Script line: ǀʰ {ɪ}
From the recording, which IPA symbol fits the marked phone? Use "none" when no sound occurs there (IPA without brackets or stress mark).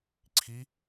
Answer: i